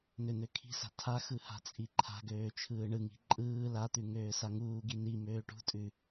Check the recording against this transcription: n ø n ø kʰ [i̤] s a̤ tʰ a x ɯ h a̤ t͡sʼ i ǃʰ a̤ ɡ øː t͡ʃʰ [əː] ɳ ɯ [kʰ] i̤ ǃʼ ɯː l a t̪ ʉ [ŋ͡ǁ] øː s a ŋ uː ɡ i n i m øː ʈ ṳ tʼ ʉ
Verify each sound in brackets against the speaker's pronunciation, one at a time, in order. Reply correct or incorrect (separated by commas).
correct, incorrect, incorrect, incorrect